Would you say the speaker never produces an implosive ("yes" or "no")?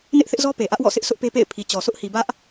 yes